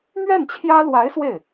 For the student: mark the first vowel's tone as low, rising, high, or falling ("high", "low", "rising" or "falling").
falling